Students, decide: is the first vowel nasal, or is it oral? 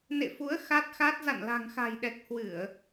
oral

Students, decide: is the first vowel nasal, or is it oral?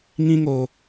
nasal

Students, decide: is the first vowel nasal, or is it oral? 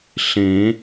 nasal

